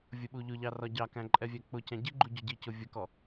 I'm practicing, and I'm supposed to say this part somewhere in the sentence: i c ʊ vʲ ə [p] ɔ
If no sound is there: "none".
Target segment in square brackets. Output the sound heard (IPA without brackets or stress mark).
k